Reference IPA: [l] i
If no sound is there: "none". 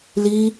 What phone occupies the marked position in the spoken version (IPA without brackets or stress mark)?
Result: l